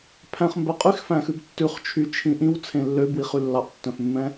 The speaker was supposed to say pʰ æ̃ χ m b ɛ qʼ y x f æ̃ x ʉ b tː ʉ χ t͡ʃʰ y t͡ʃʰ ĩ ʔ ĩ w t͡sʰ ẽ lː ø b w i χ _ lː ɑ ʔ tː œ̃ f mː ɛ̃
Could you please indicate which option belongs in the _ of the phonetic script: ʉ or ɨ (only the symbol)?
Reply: ʉ